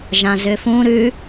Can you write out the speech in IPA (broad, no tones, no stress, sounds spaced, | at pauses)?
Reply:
ʒ ã z ʏ f ũ ɾ ʉ